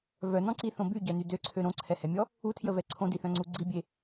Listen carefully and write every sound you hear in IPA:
vœnɔ̃ǀiθõ byɟœny døǀʰø ɾõǀʰɛhɛmʲɔ | utʰjəvɛ ǀʰõdiθœ̃ŋ͡ǀu ɡ͡ǀibʲe

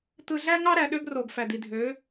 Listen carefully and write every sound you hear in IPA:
t̪ɯ˨ɮæ˦ŋɑ˦ɾæ˨ ɗø˦ɡro˨ɡ fæ˨d̪i˨ dʱø˨˦

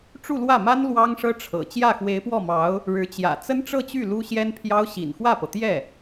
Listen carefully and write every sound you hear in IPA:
ʈ͡ʂu˥˧lwä˥˩ma˥n lwɑ˥ŋʂɤ˥ʈ͡ʂʰɤ̰˨˩ t͡ɕjä˥˩xwe˧˥ɪ̯pwɔ˥˩mɑ˧˥ʊ̯ | ɻɻ̩˧˥t͡ɕjä̰˨˩ t͡sə˥nʈ͡ʂɤ˥˧t͡ɕy˥˩ lu˥ɕjɛ˥npʰjɑ˥ʊ̯ ɕḭ˨˩nxwä˥˩pɤ˩t̪jɛ˥˩

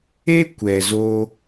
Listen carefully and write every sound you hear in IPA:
e˦ kʷɛ˨zoː˧

